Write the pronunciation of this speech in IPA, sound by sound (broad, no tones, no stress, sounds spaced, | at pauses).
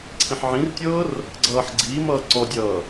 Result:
ǀʰ ĩ ħ ʕ ĩ r tʲ ɤː r | ɡ͡ǀ ʌː ħ ɡ͡ǀ iː m ʌː ǀ ɔ dʲ ʌː